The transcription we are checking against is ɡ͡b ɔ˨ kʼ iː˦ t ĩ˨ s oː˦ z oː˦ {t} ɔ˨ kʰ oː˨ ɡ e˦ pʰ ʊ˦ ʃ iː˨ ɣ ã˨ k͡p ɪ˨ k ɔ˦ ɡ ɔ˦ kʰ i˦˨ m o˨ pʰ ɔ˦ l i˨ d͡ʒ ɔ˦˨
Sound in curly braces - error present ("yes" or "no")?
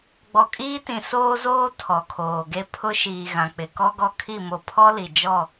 yes